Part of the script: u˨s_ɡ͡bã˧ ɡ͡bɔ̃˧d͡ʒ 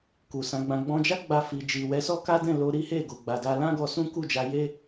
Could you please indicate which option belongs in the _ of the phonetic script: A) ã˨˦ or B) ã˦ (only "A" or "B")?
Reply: A